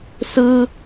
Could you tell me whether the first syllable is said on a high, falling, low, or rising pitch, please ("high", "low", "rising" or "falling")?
high